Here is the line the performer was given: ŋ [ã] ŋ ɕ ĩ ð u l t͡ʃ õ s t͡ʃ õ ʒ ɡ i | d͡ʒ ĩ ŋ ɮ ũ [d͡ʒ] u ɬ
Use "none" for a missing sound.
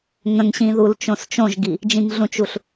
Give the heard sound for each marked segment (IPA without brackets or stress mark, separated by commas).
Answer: ə̃, t͡ʃ